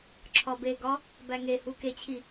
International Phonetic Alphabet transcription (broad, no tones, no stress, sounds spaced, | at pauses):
ǁʰ ɒ b e ɡ ɒ | b æ ŋ e h u k e t͡ɕʰ i